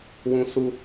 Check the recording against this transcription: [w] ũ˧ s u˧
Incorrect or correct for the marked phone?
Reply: correct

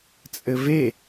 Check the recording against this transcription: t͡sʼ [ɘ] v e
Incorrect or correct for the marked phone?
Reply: correct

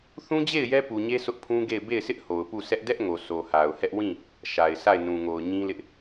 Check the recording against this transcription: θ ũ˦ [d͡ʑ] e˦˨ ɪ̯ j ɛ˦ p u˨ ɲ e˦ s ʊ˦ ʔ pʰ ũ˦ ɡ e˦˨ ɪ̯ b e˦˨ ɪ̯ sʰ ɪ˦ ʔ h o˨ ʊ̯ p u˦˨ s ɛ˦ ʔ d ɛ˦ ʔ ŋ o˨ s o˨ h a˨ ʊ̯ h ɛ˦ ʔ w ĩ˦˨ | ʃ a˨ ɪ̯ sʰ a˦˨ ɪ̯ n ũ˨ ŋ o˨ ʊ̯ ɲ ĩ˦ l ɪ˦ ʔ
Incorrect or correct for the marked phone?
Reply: correct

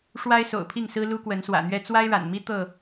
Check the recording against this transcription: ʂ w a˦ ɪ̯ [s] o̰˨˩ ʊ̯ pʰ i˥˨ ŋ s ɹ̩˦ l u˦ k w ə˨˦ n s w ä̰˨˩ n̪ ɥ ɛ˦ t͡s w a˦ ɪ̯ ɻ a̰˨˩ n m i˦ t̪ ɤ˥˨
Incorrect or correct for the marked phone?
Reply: correct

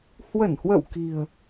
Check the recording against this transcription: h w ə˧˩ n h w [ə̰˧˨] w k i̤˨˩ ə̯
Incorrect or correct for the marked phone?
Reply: correct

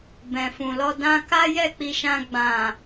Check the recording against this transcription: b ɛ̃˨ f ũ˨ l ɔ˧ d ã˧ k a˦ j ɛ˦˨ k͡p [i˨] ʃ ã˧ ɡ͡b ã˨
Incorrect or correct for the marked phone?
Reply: incorrect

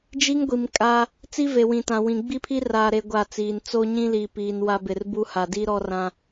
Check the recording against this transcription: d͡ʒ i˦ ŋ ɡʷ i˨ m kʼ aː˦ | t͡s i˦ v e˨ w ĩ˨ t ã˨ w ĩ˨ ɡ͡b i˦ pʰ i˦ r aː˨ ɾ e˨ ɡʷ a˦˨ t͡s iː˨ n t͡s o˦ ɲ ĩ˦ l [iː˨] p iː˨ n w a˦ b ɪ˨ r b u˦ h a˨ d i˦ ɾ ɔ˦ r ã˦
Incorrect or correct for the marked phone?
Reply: correct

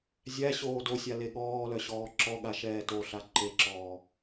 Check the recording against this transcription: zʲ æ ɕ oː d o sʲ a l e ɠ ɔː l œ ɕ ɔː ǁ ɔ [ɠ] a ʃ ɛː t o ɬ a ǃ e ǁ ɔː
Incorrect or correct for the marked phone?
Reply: correct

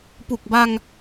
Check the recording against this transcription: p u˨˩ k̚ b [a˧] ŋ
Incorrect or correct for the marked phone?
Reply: correct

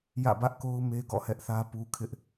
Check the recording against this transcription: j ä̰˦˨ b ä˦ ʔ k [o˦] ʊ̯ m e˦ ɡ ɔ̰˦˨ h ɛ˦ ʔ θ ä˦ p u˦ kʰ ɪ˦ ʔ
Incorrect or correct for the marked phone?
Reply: correct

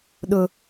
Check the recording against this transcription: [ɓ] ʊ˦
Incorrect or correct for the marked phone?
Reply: incorrect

